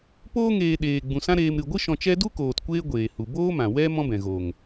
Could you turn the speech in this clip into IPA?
poː˧ŋeː˨ ɗeː˨ ɡ͡bũ˨sã˦ɾeː˧m ɾɨ˨ɡʷɨ˦ ʃɔ̃˧t͡ʃɛ˦ du˦koː˨t kʷeː˦ɡʷeː˨hu˨ boː˦mã˨wɛ˦ mɔ̃˦ bɛ̃˨ɣoː˨ŋ

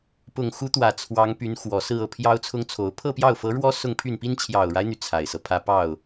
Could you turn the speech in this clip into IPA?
pʊ˨˩ŋxu˧˥t̪wä˨˩ t͡sʰwɑ˧˥ŋpy˧˥n xwɔ˨˩sɹ̩˥˧ ɤ˥˩pʰjɑ˥ʊ̯t͡sʰʊ˥ŋt͡sʰo˧˥ʊ̯ pʰɤ˥˧pjɑ˥˩ʊ̯fɤ˧˥ɻwɔ˥ sʊ˥˧ŋpʰy˥˩npi˥n t͡ɕʰjɑ˨˩ʊ̯ɻa˦ɪ̯n̪y˩ t͡sʰa˨˩ɪ̯sɤ˦pʰä˥ pɑ˥˩ʊ̯

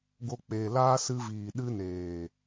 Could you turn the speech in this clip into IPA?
ɡo˧k͡peː˨ laː˦sɨ˧ viː˨ɗɨ˧neː˨

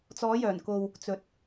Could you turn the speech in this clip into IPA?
t͡sɔː˨˧jœː˨˩nko˨w | t͡sɵ˨˥t̚

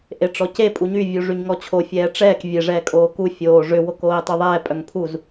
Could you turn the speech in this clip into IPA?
ʔeʈ͡ʂɔce pʼuɲy vʲuʐyɲŋɔt͡ɕʰo fʲɛːʈ͡ʂɛːk vʲe ʐɛːkʼoːku fʲoː ʐʏ wokoːi̯tˤyðˤɛː pʼœŋpʰuz

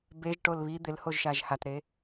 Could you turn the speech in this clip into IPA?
beʒ ʈolβi d̪ɪlhoʒʃaʒ hatɾe

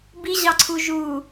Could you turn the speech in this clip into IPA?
biʑɑǀʰu ʒu

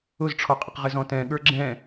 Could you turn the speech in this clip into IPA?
ʊzʈ͡ʂʰɔqʼɪq ʁɪzɔ̃tɛ̃ ɠə˞ɡ͡ǁɛ̃

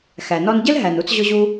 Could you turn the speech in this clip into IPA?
xæ˩nɔ˧nɟɘ˥l ɦæ˩nu˧t͡sʑʊ˧ʑu˧

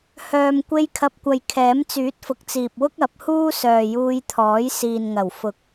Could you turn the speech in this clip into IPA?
hœː˨m kʷe˧jkʰɐ˨p̚kʷɐ˨j kʰɛː˨˥m t͡syː˨˥t̚fʊ˨k̚t͡siː˨p̚wʊ˥k̚ ɐ˨˥p̚huː˥ sœː˨juː˧jt̪ʰɔː˨˥j siː˨nŋɐ˨˩w fʊ˨˥k̚

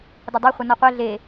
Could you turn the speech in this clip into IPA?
dʌdˤʌχʷʌ nɔqʷɛ ɮe

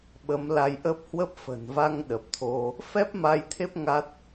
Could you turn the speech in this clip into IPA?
ɓə˨˦mla˧jʔə˦˥p̚ hwə˦˥p̚fə̤˨˩n va˧ŋ ɗə˨˩p̚t̪ʰo˧ | fɛ˦˥p̚ ma˧jt̪ʰe˦˥p̚ ŋa˦˥t̚

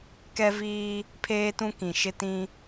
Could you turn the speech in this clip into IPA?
kɛ˦viː˦ | pʰeː˦tũ˦kĩ˨ ʃɪ˦tĩ˦

